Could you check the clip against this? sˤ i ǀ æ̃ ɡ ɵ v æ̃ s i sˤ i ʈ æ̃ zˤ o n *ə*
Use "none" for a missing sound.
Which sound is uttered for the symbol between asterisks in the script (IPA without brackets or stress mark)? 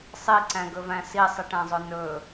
ɵ